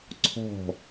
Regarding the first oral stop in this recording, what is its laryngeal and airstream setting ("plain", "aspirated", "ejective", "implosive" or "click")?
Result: click